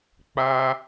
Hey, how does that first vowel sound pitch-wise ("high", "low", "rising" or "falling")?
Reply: high